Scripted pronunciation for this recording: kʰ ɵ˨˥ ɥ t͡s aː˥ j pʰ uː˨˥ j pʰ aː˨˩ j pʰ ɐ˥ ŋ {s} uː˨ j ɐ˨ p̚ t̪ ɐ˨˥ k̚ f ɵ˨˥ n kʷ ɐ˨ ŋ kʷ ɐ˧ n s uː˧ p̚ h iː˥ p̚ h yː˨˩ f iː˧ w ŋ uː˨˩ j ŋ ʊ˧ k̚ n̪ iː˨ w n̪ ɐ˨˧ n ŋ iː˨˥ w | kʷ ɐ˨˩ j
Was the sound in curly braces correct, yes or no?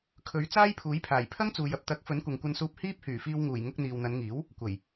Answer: no